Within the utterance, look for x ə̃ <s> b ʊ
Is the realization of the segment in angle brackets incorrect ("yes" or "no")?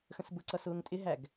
no